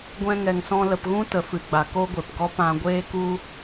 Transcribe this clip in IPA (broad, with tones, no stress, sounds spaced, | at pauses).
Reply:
ɡʷ ɛ̃˧ ŋ ɛ˨ ŋ s ɔ̃˧ l ə˨ p ɣ ũ˦ t ə˨ f ɨ˨ ɡ͡b a˨ k o˦ ɡʷ e˨ p ɡ ɔ˦ p ã˧ ɡʷ eː˦ k u˦